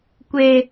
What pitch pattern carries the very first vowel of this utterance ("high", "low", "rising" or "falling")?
low